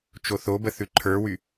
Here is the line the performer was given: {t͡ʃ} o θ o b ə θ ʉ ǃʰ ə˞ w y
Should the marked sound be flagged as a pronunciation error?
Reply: no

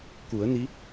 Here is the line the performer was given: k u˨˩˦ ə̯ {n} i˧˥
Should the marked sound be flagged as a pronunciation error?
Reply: no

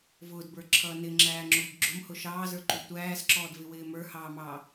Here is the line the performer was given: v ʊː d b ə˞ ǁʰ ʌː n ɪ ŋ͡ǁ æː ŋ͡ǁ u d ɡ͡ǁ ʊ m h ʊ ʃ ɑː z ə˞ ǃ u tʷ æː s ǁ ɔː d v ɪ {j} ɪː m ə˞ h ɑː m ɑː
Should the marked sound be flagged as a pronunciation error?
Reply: yes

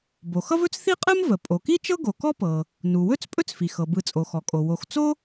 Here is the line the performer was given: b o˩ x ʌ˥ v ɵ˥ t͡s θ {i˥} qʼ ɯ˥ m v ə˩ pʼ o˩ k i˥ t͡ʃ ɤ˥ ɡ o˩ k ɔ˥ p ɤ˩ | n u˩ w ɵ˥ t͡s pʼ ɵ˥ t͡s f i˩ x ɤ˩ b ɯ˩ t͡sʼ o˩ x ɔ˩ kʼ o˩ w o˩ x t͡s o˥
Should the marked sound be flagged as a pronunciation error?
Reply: no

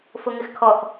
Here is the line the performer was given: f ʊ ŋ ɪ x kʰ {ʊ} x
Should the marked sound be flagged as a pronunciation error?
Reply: yes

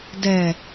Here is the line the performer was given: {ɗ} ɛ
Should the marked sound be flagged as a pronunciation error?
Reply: yes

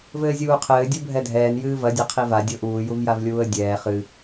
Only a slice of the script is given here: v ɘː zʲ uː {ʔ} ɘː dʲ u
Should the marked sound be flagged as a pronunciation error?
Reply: yes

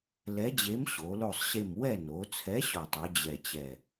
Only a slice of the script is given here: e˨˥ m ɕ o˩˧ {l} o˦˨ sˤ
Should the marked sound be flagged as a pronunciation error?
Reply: no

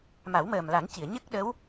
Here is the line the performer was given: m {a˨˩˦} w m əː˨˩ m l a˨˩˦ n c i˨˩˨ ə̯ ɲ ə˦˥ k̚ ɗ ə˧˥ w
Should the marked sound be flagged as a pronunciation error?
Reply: no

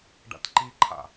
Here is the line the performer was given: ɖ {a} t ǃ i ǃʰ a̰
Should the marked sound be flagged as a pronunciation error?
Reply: yes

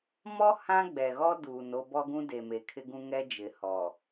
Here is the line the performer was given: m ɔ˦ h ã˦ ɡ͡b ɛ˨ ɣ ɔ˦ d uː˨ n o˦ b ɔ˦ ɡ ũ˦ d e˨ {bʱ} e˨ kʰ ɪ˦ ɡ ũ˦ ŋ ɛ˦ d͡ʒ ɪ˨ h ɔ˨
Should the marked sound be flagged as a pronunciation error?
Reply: yes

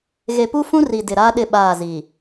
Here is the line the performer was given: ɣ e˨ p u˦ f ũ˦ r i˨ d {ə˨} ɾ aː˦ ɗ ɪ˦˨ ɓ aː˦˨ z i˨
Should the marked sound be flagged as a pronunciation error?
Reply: yes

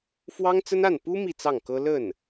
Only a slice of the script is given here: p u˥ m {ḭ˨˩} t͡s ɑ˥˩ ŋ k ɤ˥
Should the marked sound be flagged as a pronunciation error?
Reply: yes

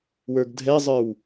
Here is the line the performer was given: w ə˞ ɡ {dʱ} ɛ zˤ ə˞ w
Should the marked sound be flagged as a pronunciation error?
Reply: no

